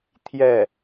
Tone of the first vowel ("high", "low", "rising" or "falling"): falling